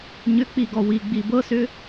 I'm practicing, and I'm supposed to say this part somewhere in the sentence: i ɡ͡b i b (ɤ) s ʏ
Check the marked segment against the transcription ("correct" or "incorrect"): correct